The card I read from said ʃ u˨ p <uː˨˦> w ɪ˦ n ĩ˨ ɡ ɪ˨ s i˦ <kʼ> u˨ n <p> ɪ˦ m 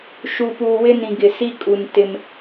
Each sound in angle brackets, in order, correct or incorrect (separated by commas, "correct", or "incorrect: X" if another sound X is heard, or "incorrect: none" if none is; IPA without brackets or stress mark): incorrect: uː˨, correct, incorrect: t